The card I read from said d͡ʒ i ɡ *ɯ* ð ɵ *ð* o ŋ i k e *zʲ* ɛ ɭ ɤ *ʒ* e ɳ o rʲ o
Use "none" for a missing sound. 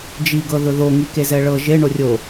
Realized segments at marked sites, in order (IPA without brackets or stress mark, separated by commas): ɤ, ð, z, ʒ